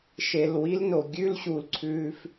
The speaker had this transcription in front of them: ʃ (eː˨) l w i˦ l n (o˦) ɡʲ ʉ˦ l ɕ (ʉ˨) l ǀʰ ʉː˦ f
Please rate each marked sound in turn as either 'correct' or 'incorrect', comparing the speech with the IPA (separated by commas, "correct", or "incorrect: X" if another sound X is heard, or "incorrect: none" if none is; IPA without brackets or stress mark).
incorrect: e˨, incorrect: o˨, incorrect: u˨